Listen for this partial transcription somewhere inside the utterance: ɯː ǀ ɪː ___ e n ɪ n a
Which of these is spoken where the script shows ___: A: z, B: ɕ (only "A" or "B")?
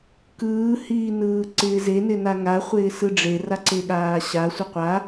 A